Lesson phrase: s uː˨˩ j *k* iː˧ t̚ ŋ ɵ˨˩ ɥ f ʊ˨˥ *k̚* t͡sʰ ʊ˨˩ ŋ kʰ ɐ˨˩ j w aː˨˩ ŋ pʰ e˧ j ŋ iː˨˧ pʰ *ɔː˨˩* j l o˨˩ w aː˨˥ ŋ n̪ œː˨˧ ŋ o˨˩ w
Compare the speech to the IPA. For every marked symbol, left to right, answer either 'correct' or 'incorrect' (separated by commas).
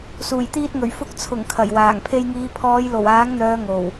incorrect, correct, incorrect